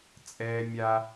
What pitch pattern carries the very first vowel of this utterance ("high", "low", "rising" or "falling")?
high